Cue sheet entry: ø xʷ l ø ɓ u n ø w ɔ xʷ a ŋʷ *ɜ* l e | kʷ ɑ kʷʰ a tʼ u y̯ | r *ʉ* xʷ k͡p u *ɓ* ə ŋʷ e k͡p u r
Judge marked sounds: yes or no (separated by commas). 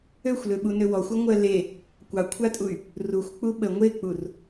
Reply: yes, no, yes